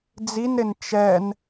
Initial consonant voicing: voiced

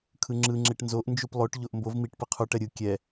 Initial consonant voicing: voiceless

